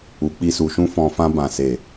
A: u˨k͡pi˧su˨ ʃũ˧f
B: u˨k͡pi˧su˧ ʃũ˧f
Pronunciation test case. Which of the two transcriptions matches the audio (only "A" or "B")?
A